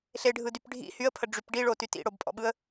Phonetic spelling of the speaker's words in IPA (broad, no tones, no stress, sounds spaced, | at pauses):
ɬ e ɖʱ ɯ d y p ɖʱ ḭ h y ə̯ pʰ ə ɖ͡ʐ y p ɖ i ɭ o t y t ḭ ɽ o b pʼ ɔ̰ ɓ ɯ ə̯